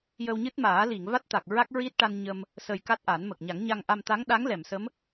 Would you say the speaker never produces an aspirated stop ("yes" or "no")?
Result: yes